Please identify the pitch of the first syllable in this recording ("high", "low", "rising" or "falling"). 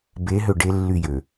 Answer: rising